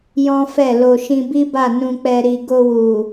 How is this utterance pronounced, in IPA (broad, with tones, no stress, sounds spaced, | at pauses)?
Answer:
j ɔ̃˦ f ɛ˦˨ l o˧ ʃ ĩ˧ b i˦ b a˦˨ n ũ˧ k͡p ɛ˧ ɾ i˨ ɡ o˧ w u˨